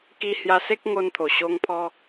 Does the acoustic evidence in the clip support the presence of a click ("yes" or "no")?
no